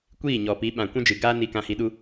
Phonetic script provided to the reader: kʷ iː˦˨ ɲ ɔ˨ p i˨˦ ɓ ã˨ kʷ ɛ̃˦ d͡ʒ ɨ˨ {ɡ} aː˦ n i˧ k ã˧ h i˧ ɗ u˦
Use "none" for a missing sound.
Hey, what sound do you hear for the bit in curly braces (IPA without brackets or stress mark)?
ɡ